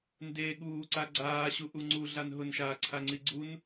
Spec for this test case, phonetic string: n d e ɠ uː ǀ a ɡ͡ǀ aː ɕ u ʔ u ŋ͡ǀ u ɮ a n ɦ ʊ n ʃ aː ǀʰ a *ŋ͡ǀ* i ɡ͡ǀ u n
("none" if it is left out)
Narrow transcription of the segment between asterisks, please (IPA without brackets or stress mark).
ŋ͡ǀ